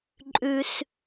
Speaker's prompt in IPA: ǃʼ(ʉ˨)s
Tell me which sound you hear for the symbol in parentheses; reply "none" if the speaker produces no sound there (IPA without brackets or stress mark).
ʉ˨